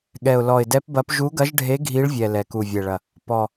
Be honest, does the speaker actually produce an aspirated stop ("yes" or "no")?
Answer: no